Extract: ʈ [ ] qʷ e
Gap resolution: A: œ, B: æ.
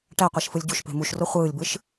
B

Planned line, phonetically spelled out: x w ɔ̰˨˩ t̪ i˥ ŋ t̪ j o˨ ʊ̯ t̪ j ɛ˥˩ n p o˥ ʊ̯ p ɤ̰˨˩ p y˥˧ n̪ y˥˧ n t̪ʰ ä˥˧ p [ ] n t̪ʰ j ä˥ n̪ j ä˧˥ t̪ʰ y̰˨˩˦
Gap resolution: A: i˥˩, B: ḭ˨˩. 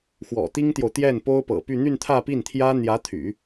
A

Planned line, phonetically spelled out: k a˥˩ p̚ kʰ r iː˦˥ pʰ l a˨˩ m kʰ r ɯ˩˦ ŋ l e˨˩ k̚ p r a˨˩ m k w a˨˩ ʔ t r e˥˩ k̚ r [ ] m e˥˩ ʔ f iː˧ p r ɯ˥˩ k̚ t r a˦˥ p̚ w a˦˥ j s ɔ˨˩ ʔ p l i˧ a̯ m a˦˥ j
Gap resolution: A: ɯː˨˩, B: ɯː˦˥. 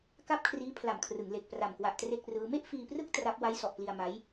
B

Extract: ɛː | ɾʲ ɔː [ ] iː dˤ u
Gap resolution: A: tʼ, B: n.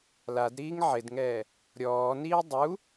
B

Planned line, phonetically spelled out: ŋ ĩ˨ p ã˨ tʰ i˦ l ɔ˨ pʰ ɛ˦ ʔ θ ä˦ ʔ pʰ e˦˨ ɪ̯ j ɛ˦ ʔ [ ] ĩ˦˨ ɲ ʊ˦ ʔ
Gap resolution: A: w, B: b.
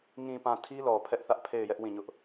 A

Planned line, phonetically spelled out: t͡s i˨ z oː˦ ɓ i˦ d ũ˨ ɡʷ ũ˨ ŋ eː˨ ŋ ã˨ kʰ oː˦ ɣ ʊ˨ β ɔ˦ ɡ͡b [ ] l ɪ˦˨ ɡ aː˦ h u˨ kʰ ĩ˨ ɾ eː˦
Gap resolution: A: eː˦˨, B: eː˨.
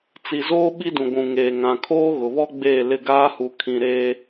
A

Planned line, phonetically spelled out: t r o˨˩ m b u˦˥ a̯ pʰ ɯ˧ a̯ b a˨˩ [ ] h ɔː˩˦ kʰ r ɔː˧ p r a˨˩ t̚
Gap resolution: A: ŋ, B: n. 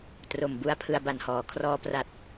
B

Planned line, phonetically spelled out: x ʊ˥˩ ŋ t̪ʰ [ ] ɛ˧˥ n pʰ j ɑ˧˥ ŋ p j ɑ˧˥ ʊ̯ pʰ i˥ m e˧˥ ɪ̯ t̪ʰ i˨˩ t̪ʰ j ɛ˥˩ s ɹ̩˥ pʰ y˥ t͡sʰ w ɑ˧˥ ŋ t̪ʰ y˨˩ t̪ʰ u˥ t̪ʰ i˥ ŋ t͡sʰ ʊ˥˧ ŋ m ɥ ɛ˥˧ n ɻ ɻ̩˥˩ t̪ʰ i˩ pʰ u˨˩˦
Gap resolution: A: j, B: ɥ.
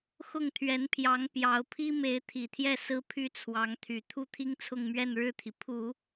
B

